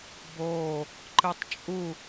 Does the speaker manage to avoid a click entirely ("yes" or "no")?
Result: no